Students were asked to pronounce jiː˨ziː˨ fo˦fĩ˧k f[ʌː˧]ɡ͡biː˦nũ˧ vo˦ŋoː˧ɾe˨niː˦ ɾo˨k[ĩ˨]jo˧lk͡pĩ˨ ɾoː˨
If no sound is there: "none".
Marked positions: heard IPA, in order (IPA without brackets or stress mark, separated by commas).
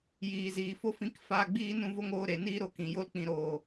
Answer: aː˧, ĩ˨